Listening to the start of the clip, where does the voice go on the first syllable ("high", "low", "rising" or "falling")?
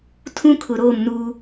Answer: high